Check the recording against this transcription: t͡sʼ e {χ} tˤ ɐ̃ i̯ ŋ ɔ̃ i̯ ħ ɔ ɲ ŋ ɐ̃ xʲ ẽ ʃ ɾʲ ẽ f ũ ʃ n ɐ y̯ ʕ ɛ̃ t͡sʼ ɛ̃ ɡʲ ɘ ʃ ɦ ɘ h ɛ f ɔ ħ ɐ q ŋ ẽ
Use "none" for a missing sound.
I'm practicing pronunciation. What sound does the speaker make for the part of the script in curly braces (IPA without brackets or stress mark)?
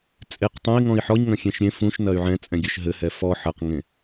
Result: q